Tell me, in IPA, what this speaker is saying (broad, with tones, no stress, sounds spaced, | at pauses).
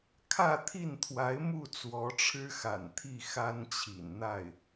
kʰ ä˥˧ t̪ʰ i˥˩ n t̪ʰ w a˧˥ ɪ̯ m u˥˩ t͡s w ɔ˧˥ ʈ͡ʂʰ ɻ̩˥ x a̰˨˩ n t̪ʰ i˥˩ x a˥ n t͡ɕʰ ḭ˨˩ n n̪ a˥˩ ɪ̯